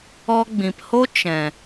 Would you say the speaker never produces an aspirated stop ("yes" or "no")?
yes